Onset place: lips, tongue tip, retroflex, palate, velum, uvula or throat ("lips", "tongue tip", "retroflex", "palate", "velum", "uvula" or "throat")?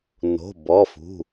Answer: tongue tip